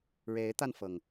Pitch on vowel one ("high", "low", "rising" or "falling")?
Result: rising